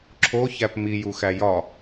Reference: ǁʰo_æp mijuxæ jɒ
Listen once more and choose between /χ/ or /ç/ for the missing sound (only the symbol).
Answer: ç